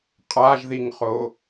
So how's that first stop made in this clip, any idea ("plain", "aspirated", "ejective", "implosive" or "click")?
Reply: ejective